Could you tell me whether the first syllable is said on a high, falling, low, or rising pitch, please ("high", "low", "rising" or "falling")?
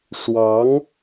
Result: rising